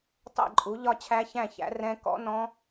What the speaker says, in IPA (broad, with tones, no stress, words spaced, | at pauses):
tˤɛ̰˥˨ǃʼu˩˥ ʎɒ˥˨t͡ɕʰæ˦˥çæ̃˥˨çæ̰˩˥ rɛ̃˦˥ kɔ̰˦˥nɔ̃˦˥